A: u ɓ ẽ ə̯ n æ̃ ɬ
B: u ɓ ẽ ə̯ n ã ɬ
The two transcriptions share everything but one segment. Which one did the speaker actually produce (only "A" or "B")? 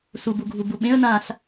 B